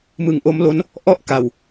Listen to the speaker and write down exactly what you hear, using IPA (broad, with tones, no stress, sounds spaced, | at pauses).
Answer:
m ɯ˨˩ ŋ ʔ o˦˥ m l o˦˥ n | ʔ ɔ˥˩ ʔ k a˨˩ w